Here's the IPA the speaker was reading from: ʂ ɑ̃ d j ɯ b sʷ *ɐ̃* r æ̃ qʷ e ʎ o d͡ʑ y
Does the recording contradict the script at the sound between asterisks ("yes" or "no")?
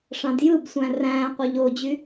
yes